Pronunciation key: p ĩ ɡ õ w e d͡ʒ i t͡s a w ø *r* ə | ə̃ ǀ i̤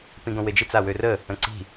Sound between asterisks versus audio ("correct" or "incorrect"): correct